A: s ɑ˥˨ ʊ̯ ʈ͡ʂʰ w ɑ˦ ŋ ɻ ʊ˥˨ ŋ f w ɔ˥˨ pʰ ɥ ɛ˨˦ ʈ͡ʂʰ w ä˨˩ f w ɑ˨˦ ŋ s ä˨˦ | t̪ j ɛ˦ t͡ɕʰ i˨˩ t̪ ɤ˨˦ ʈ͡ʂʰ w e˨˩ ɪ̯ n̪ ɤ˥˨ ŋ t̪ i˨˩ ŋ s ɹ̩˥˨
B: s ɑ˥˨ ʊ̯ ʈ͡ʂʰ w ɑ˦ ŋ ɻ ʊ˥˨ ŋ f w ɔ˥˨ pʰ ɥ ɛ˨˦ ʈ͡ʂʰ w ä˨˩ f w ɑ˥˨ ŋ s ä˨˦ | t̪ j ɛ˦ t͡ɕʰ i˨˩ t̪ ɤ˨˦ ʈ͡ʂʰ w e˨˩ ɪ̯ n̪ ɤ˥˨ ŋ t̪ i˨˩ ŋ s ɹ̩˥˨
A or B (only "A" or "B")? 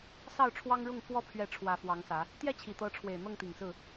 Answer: A